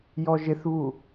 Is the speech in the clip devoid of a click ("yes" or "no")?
yes